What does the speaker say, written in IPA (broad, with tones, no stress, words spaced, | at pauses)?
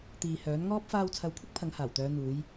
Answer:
t̪iː˨ hœː˨˥nŋɔː˥p̚ faː˧wt͡sʰɐ˨˧wkʷʰɪ˥k̚ pʰɐ˨˥ŋhaː˨˩wt̪œː˨˧ n̪uː˨˧j